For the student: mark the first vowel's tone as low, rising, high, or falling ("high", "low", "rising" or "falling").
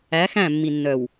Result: rising